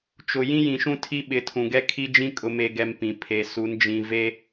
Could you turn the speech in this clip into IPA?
t͡ʃʊ˨ jĩ˦jĩ˨ʃũ˦ tʰi˦ɓɪ˨˦tʰũ˨ɡɛ˦ kʰi˦d͡ʒĩ˦ kʼʊ˨me˨ɡɛ˨m pĩ˨pʰe˨su˨˦n d͡ʒĩ˨ve˦

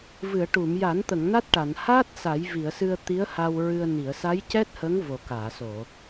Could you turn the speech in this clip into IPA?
vɨ˨˩˨ə̯ ʈu˨˩˨mja˨˩˦nt̪ə˨˩˨ŋ na˦˥t̚ʈa˨˩˨n haː˦˥t̚ sa˨˩˦jvi˨˩˨ə̯sɨ˧ə̯ t̪i˧˥ə̯ha˧w ɹɨ˧ə̯ ni˨˩˨ə̯sa˧˥jcɛ˦˥t̚hə˧˥ŋ vo˨˩kaː˨˩˨so˨˩˨

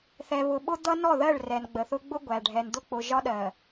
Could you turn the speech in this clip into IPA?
θɛ˨βʊ˨ɓʊ˦d̪ʌ˦ nɔ˦˨ðɜ˦˨ɭ rɛ˨nɡ͡bə˨θʊ˦ ɡ͡bʊ˦ɡʷæ˨ɖʱɛ˨nd̪ʊ˦ k͡pʊ˨ʒɒ˦ɗɜ˨

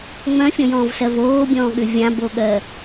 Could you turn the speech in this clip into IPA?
ŋ͡mœ̃fʲɔ̃jɔ̃ːvsɜv oːbʲɔ̃ːɠʏ vʲãboɠɜ

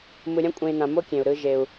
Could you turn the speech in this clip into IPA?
mɯ˨ɾʲã˥kʷʼẽ˨i̯ nã˨mo˥kʲẽ˩u̯ ɾɯ˨ʒe˩u̯

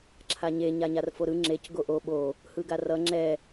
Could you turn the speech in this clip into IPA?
ǁʰaɲe ɲaɲarfoɾɯ ŋ͡ǁec ɡoʔo ɓo | hɯɡarʌ ŋ͡ǁɛ

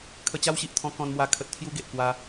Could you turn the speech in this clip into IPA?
kʰə˧t͡ɕa˦wɕi˨ʔt̪ʰɔ̃˧ kɔ̃˧nmwa˧ kʰə˨t̚t̪ʰju˧ ɡe˨ʔkwa˧

